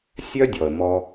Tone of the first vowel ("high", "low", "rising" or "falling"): high